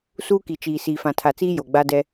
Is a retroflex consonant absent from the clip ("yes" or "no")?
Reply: yes